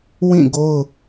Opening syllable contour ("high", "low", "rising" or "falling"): falling